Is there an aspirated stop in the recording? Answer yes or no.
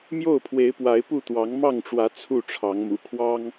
yes